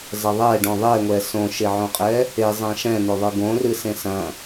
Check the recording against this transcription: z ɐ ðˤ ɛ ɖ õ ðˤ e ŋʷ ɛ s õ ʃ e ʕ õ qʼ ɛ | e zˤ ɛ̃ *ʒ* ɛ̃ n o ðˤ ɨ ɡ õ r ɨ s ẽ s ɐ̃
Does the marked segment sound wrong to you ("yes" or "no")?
yes